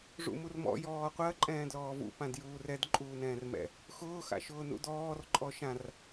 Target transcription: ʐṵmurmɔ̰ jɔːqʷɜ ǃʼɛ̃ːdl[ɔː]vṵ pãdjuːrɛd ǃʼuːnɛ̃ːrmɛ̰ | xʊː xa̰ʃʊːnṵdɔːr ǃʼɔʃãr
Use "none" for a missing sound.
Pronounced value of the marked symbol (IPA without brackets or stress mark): ɔː